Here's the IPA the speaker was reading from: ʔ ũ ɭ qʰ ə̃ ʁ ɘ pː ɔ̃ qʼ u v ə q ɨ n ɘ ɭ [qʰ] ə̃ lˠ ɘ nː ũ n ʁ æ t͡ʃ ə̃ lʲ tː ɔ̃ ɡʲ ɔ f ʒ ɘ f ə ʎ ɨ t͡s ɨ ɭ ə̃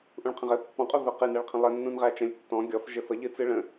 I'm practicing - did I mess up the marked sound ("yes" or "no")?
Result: no